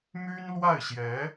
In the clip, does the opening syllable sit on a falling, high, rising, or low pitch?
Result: high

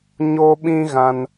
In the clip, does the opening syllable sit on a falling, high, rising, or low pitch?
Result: high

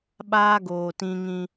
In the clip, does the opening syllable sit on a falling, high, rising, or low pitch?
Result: high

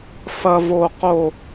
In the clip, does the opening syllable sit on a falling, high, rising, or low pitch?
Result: high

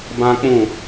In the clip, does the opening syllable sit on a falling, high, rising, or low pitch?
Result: high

